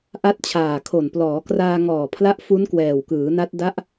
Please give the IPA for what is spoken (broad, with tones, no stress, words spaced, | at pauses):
ʔa˦˥t̚t͡ɕʰaː˨˩kʰo˨˩nplɔː˩˦ kraː˧ŋɔː˨˩pʰla˦˥ʔ fu˦˥nkwɛː˨˩wkɯː˩˦na˦˥t̚ da˦˥ʔ